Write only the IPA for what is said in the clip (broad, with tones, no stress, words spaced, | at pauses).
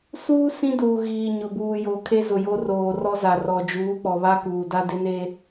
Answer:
suː˦ sĩ˦duː˨ ɣiː˨ɲʊ˨buː˨jo˨ kʰe˦zʊ˨jo˦ roː˨rɔ˦ za˨rɔ˨d͡ʒuː˨˦ k͡pɔ˨βa˦ kuː˨da˦ dɪ˦ne˦